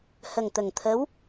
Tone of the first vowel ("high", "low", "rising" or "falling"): low